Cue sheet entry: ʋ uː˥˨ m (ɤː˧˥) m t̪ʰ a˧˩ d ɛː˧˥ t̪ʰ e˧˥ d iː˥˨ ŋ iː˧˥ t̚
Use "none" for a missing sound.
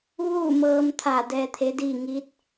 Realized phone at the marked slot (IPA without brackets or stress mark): ɤː˧